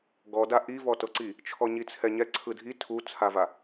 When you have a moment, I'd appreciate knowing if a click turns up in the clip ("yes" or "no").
yes